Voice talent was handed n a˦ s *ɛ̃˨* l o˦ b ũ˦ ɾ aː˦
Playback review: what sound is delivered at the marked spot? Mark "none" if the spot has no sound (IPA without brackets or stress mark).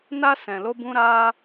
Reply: ɛ̃˨